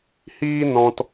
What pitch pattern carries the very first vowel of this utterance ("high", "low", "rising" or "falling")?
high